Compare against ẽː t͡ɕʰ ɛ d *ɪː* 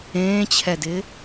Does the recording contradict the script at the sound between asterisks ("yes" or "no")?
no